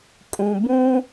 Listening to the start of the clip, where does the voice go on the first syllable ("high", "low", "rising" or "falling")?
low